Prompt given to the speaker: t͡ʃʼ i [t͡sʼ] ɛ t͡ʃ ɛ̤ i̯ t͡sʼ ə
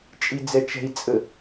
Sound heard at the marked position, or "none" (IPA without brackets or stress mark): d͡z